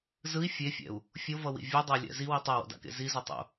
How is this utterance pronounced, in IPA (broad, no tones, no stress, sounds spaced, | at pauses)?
z ɯ i̯ fʲ e fʲ ɛ̰ u̯ | fʲ o v ʌ w ḭ vʲ ɯ dˤ e lʲ ɛ̰ z i w i tˤ a w o̰ d a̰ k ḛ z i z ʌ tˤ o̰